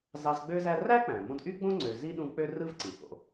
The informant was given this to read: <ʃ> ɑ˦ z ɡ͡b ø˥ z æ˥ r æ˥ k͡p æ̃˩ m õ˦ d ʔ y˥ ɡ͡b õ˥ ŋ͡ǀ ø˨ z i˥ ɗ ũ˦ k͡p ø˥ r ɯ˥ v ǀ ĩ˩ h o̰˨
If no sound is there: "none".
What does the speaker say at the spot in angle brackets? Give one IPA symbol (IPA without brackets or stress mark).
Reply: z